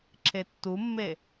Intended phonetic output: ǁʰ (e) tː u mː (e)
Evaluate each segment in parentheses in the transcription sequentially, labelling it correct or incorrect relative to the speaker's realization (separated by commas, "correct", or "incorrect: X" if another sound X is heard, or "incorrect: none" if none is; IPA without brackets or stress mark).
correct, correct